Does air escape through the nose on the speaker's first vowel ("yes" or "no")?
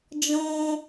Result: yes